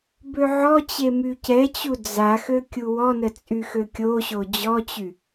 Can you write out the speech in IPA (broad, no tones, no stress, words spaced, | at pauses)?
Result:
bøʕɔt͡ɕe mycɛt͡ɕu d͡za xøkʲuwɔnə t͡sʼyxøkʲoɕo d͡ʑɔt͡ɕy